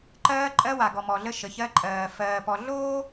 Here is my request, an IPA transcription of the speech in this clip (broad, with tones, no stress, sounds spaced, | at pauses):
ǃ ɜː˦ ǃʼ ɜ˦ w a˨ ɡ ɔ˨ m ɔ˨ ɮ ə˦ ʃ ə˨ ç ɜ˦ ǃʼ ɜː˨ f ɜː˨ p ɔ˨ ɮ oː˦